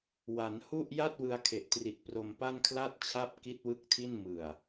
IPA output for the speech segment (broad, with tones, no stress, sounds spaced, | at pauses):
w a˩˦ n h u˥˩ ʔ j a˥˩ t̚ w ɯ˧ a̯ kʰ e˨˩ ʔ t r i˨˩ t̚ p r o˧ m p a˥˩ n kʰ l a˥˩ t̚ t͡ɕʰ a˥˩ p̚ k i˥˩ t̚ w ɯ˥˩ k̚ tʰ i˥˩ n m ɯ˨˩ a̯